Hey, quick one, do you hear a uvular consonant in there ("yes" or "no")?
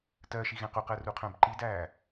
yes